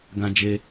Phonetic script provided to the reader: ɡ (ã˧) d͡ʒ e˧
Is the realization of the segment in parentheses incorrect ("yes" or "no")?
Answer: no